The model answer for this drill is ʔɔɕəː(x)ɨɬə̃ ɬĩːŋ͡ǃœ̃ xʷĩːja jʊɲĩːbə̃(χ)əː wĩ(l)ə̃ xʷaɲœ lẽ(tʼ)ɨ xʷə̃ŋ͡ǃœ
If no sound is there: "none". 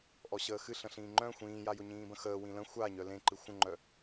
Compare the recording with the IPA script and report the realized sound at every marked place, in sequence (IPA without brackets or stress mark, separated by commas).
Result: x, x, l, ǃ